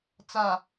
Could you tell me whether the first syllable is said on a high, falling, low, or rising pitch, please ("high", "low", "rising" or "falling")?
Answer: low